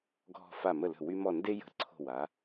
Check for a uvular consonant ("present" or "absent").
absent